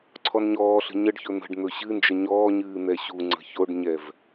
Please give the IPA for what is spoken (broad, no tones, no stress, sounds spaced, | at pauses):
ǀʰ ɔ n ɲ ɔː ɬ ə̤ ɲ ə ɖ ç ɵ n̪ ə̤ ɖ n̪ ɵ ɕ ɨ n d͡ʒ ə ɲ ɔː ɲ ɨː n̪ ɛ ɕ u ŋ͡ǀ ə̤ ç o ɖ ɲ ɛ v